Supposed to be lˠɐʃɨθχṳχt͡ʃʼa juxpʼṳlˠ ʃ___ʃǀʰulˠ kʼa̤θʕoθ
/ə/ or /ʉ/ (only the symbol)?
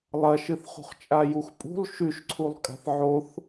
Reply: ʉ